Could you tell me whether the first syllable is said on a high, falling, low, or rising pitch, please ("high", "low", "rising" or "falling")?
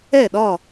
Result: falling